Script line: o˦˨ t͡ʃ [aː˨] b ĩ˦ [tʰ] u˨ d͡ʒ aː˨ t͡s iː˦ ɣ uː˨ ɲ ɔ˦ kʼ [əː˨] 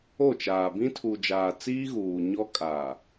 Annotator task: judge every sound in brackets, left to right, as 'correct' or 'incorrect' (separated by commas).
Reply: correct, correct, incorrect